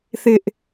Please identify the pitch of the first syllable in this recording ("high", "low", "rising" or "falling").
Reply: high